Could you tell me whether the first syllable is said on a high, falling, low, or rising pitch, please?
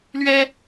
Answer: high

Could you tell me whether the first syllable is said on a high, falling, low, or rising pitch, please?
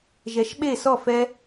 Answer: rising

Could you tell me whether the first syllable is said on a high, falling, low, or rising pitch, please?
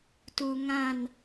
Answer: low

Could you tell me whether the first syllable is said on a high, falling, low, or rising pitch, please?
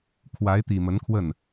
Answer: rising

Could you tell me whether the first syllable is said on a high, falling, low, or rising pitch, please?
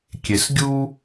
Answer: low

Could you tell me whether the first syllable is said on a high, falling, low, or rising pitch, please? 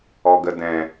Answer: low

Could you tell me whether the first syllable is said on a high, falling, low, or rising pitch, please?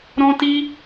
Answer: high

